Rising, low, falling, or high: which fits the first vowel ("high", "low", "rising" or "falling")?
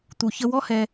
low